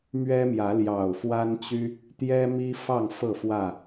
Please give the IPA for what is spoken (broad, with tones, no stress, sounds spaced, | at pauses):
m ɥ ɛ˦ m j ä˨˦ l j ɑ˨˩ ʊ̯ f w a˦ n t͡ɕ y˦ | t̪ j ɛ˦ m i˦ f ɑ˥˨ ŋ f ɤ˥˨ f w ä˥˨